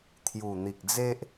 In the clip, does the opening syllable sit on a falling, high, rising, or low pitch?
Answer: low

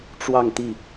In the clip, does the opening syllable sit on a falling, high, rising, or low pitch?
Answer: falling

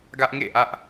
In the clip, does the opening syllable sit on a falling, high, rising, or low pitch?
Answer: high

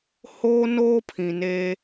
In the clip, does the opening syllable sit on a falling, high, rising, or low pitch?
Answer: high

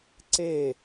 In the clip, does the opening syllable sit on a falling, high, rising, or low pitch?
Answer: falling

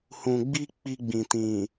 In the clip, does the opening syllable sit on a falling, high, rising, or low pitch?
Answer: low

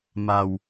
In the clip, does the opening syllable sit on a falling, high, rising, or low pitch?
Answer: low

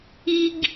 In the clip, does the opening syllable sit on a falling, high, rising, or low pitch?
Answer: high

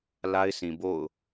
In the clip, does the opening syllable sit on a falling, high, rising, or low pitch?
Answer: high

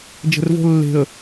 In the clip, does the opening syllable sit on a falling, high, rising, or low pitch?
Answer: low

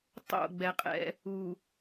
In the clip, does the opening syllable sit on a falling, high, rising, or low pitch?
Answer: falling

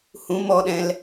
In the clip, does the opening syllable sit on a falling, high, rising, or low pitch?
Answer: rising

